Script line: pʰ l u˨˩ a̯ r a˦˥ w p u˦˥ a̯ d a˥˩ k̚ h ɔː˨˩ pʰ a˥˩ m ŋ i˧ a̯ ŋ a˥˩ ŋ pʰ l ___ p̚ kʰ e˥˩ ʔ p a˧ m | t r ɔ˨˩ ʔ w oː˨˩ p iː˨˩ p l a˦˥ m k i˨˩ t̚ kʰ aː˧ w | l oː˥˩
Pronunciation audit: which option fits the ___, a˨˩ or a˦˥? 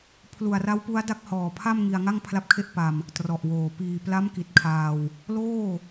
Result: a˦˥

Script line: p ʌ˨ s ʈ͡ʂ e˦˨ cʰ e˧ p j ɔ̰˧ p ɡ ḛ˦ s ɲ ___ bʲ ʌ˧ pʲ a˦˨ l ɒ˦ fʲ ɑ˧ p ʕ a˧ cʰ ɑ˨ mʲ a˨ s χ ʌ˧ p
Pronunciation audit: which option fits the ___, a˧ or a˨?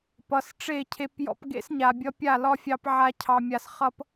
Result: a˨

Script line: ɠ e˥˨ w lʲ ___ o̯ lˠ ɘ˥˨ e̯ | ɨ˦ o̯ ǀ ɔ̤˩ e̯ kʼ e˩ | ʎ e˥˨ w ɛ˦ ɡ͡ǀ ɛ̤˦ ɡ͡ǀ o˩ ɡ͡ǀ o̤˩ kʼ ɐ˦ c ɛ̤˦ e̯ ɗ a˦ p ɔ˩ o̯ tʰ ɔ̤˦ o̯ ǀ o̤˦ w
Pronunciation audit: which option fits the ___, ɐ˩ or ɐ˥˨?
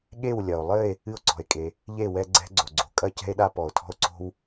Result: ɐ˩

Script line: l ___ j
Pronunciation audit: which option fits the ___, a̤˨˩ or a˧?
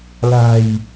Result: a̤˨˩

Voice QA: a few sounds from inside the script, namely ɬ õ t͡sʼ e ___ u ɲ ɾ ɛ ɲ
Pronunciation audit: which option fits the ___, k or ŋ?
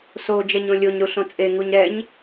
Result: ŋ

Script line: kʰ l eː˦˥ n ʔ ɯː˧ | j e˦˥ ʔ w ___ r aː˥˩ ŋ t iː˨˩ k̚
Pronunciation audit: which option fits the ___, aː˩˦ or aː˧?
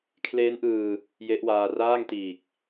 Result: aː˧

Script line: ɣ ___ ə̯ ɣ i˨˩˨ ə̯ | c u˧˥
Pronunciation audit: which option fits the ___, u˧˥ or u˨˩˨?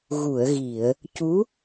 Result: u˨˩˨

